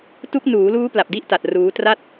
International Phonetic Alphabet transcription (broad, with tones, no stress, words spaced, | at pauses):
tu˦˥k̚nuː˩˦luː˦˥ pla˨˩p̚di˥˩ʔta˨˩t̚ ruː˦˥ tra˥˩t̚